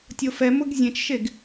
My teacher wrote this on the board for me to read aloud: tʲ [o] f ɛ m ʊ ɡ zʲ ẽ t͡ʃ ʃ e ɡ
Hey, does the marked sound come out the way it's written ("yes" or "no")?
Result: yes